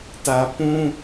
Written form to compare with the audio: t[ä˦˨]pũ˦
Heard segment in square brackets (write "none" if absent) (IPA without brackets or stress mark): ä˨